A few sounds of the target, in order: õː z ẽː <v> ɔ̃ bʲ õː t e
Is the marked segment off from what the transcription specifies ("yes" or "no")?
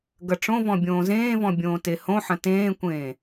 no